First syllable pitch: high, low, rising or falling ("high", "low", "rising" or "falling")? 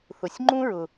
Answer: low